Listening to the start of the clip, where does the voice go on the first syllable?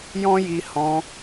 high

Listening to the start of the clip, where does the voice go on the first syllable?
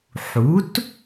rising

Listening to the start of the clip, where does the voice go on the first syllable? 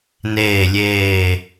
low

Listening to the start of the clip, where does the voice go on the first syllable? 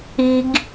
high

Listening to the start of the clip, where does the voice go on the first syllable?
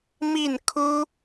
falling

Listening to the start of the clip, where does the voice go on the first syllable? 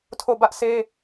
falling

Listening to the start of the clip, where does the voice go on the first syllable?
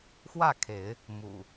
falling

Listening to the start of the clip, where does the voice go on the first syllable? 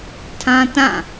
high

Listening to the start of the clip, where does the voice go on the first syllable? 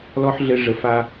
high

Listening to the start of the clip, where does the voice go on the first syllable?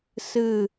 falling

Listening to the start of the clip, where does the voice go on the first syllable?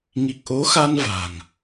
low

